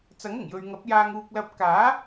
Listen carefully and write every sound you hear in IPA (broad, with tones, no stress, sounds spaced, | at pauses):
t͡s ɐ˨˥ ŋ ʊ˨˩ ŋ j ɵ˨ ɥ ŋ ɐ˨˥ p̚ j aː˧ ŋ uː˧ k̚ l ɐ˧ p̚ k aː˨˥